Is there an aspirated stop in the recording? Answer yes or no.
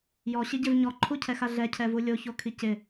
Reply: yes